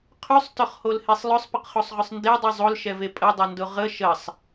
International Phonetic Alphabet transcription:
qʰ ʉ sˤ t ʊ χ h o l h e sˤ lˠ ɵ sˤ p ə q χ o sˤ ʁ ʊ sˤ n d e dˤ ʉ zˤ o l ʃ ɛ v e pʼ ə dˤ ɵ n d ʊ ʁ ə ʃ ə sˤ

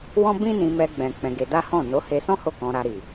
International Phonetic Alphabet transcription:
w ɔ̃˦ b ĩ˦ n ĩ˧ m ɛ˧ ɡ͡b ɛ̃˨ k͡p ɛ̃˧ ɡ e˧ d a˦ h ɔ̃˦˨ n o˨˦ h e˧ s ɔ̃˦ h o˦˨ k ɔ̃˧ ɾ a˧ ɾ i˨

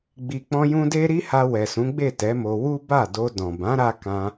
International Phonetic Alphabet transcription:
ɡ͡b i˨ k͡p ɔ̃˧ j ũ˧ d e˦ ɾ i˦ h a˧ w ɛ˨ s ũ˨˦ ɡ͡b e˦˨ t ɛ˨˦ m o˧ w u˦ b a˦˨ d o˧ d ɔ̃˨ b ã˨˦ ɾ a˧ k ã˧

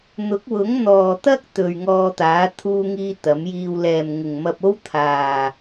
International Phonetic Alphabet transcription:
n̪ ʊ˨˥ k̚ w ʊ˨˥ ŋ n̪ ɔː˨ t̪ ɐ˥ k̚ t̪ ɵ˨ ɥ ŋ ɔː˧ t̪ aː˨˥ t̪ʰ uː˧ ŋ iː˧ t̪ ɐ˨˥ m j iː˧ w l ɛː˨ m ŋ ɪ˨ ŋ m ɐ˧ p̚ o˥ w t̪ʰ aː˨

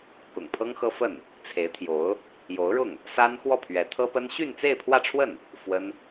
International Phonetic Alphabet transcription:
k ʊ̰˨˩ ŋ pʰ ɤ˥ ŋ x ɤ˥ f ə˥˩ n | t͡sʰ e˧˥ ɪ̯ t̪ʰ j o˧˥ ʊ̯ | j o˧˥ ʊ̯ ɻ ʊ˥˩ ŋ | s a˥ n x w ɔ˥˩ pʰ ɥ ɛ˧˥ t̪ʰ ɤ˥ p ə˥ n ɕ y˥˧ n t͡s e˥˧ ɪ̯ pʰ w ä˥˧ ʈ͡ʂʰ w ə˥˩ n | f w ə˥ n

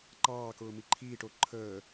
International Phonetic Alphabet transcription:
ǃ ɑː k ʊː m i ǃʰ iː ʈ o ǃʰ əː

